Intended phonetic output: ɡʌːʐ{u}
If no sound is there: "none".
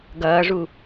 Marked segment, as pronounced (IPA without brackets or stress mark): u